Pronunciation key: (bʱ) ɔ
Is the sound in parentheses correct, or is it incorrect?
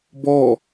incorrect